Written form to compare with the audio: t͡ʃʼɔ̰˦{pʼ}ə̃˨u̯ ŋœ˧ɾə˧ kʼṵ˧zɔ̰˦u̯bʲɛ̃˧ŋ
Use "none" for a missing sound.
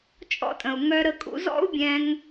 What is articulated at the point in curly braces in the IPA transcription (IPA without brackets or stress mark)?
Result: tʼ